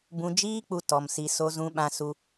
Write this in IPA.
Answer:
b ũ˧ d͡ʒ iː˦ k͡p u˧ t ɔ˧ m s i˧ s o˧ z ũ˧ ɓ ã˧ s u˧

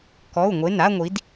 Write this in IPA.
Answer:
k ɔ˩˧˩ u̯ ŋʷ e˩˧˩ n a˥˧ ŋʷ i˩˧ d

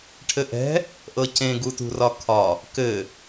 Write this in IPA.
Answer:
ʈʰ ɘ ʔ ɛ̤ | ʔ ɤ c ẽ ɡ u t ṳ r ɒ kʰ ɒ | k ɘ

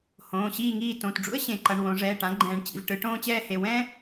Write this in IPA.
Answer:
h õː˩˧˩ ɕ iː˥˨ ŋ iː˥˨ t õ˩˧˩ t ɖ͡ʐ ṵ˥ ə̯ ɕ ẽ˨˩˦ ǃ ʌ˩˧˩ ɳ w õ˨˩˦ ʐ ɛː˩˧˩ ʈ ã˩˥ ɡ͡ǃ ɛ̃ː˨˩˦ ɳ t͡ɕ ḭ˩˧˩ v ʈ ɯ˨˩˦ ʈ õː˥ t͡ɕ ɛː˥ h e˩˧˩ w ɛ̃˥

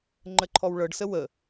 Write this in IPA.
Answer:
ŋ͡ǃ ə ǃʰ ɔ w ɭ ɤ ɖ s ə w ə

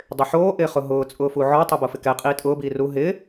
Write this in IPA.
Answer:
dˤ ɪ ħ oː ʔ ɪː χ ʊ ɦ ʊː t͡sʼ ʊː f u ʕ ɔ tˤ ɛ b o f ɪ k ɛ qʼ iː tʼ ʊː b iː r u ɦ ɪ

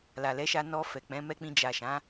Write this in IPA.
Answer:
l a˨ l ɛ˨˦ ʃ a˧ n ɔ˧ f ɛ˨ k͡p ɛ̃˨˦ m ɛ˦ k͡p ĩ˧ d͡ʒ a˨ ʃ ã˨˦

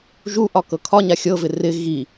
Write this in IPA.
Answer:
ʒ u ʔ ɒ k ɤ kʰ ɒ ɲ a xʲ ɤ v ɪ r ɪ ɣ i

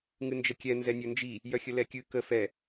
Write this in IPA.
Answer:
ŋ ɨ n d͡ʒ ə kʲ ɛ n z ɛ nʲ ɵ n d͡ʒ i | j œ xʲ ə l ɛ kʲ ɨ k ə f ɛ

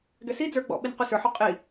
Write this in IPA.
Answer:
ɡ ɛ s i d͡z ə˞ ɡ͡b ɔ̰ ɓ i n q y s ə˞ ħ o qʼ i

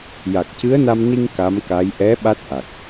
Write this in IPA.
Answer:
j a˨˩ k̚ c ɨ˧˥ ə̯ n a˧ m n i˧ ŋ k a˧˥ m k a˧˥ j ʔ ɛ˧˥ ɓ a˦˥ t̚ ʔ a˨˩ k̚

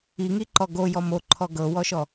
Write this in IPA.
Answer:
i ŋ i ǃ ɔ ɡ o j ɔ m o ǃʰ ɔ ɡ ɤ w ɔ ʃ ɔ

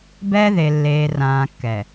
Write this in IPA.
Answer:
b ɛː˦ ð e˨ lː eː˨ r ãː˨ kː ɛ˨

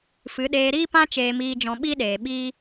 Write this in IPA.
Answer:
f ɨ˨˦ ɗ eː˧ ɾ iː˦ p ã˦ t͡ʃ eː˦ m iː˦ d͡ʒ ɔ̃˦ ɓ i˦ ɗ eː˨ ɓ iː˦

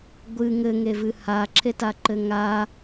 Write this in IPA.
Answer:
ɡʷ ɨ ŋ ɘ ŋ e v ɨ h a ǁʰ e t a ǃ ɘ ŋ a

